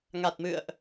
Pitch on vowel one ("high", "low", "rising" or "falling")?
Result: low